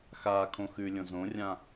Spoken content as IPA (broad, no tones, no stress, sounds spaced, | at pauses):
x a kʰ õ x ʉ lʲ õ z õ rʲ ã